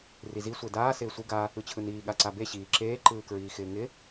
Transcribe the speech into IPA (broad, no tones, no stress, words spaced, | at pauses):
rizi sʷedaː sɪːsʷɯ ɡa | ɯt͡ɕʰɯniː ɠaǀabe ɕiːǁeː ǃɯːkɹiːxɪːŋɪ